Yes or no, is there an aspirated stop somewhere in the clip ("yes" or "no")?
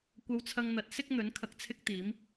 yes